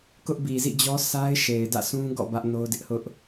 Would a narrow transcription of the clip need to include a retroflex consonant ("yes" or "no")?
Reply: no